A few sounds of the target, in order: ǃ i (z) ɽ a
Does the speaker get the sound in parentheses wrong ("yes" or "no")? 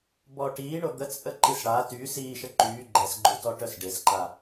yes